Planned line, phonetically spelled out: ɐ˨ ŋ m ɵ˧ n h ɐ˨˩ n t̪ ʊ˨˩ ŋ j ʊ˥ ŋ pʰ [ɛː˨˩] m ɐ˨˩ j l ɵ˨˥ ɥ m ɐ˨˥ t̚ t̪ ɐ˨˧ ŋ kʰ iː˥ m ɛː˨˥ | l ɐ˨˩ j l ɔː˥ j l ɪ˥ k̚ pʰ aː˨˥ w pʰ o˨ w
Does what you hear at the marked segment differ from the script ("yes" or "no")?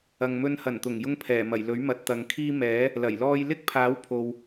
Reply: no